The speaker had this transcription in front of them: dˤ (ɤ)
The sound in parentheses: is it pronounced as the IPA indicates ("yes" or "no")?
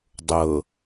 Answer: yes